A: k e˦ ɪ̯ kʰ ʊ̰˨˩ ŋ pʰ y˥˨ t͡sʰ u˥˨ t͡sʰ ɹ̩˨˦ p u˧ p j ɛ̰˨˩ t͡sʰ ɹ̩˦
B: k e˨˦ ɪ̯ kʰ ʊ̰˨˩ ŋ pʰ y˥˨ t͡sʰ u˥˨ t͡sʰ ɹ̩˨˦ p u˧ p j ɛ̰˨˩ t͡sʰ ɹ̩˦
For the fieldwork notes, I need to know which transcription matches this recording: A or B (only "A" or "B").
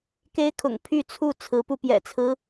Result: A